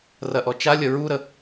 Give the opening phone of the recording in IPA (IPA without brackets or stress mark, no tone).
r